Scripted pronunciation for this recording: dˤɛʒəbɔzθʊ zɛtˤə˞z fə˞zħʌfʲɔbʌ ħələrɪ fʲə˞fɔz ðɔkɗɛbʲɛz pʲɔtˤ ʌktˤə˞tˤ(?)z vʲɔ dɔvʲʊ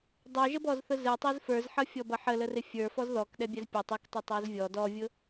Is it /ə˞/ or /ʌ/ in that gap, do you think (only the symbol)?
ə˞